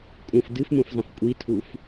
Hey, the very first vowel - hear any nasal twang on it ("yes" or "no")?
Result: yes